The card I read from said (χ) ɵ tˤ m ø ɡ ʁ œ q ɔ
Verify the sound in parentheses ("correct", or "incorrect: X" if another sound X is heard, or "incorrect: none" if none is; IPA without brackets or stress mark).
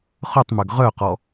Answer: correct